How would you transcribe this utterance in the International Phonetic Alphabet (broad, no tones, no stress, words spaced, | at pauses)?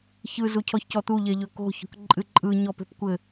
çɯ zucʰɔçcɔt̪u ʎeʎɵko̤ çɔ̤kǃʼɨǃʼɯ ɲɔpe̤pkʷɘ